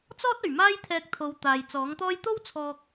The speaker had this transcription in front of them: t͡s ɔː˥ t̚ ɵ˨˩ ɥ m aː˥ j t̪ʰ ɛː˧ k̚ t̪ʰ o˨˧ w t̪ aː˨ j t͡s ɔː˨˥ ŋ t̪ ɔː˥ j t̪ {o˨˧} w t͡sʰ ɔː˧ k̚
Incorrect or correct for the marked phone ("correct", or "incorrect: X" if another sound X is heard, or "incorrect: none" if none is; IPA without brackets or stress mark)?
incorrect: o˥